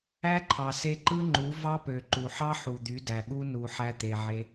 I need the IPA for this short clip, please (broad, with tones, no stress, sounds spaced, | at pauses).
æ˦ ǃʰ ɑ˨ s e˧ ǃ ɯ˦ ŋ͡ǃ u˨˦ v ɑ˦ p ø˨ ǃ u˨ ħ ɑ˦ ħ u˨ d̪ y˨˦ d æ˨ ɠ u˦ n u˧ ħ æ˧ t̪ e˨ ʕ e˧